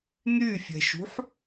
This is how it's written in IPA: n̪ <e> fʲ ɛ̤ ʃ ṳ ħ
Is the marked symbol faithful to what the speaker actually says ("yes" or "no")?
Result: no